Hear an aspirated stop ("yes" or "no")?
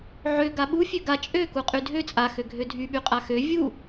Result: no